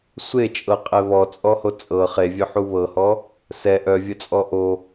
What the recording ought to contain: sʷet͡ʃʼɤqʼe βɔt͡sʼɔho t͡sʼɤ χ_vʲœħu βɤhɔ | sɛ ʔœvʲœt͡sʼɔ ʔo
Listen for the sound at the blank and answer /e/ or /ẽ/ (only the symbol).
e